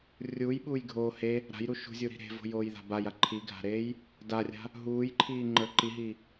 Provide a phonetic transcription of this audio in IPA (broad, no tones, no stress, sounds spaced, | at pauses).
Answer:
rʲ uː j ɓ uː j ɡʱ oː h e | ɾ a̤ j ɾ u ʃ ṳ zʲ u ɾ i̤ ɾ e̤ v o̤ j oː j ð a̤ b a j a ǃʰ i ɡʱ a̤ ɾ eː j | d a rʲ a̤ | ɦ uː j ǃʰ iː ŋ͡ǃ ə˞ ǃ i ɦ i